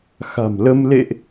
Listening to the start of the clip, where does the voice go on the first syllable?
low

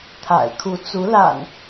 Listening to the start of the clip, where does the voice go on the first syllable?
low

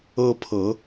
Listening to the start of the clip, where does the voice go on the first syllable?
high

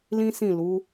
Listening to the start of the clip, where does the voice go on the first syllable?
high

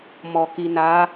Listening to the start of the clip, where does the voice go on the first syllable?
low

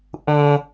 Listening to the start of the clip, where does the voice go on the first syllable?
low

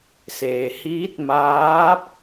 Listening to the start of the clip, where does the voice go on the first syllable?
low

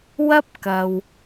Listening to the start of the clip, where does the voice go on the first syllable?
high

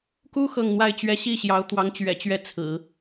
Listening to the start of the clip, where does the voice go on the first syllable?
high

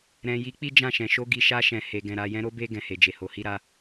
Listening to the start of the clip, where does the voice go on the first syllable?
low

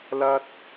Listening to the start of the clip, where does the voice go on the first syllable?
high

